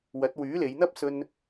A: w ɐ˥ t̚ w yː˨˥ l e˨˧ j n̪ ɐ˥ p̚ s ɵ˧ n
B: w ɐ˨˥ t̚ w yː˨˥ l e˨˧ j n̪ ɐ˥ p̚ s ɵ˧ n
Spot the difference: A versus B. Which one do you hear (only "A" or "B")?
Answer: B